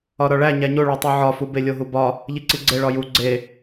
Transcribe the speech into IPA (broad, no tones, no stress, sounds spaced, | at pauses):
ɒ ɾ ɒ ɭ æ ɲ æ ɲ o ɭ o tˤ o ʕ ɒ f u b e lʲ o ɦ u b ɒ | ʎ i ǀ i ɡ͡ǀ e ɭ ɒ j u ɡ͡ǀ e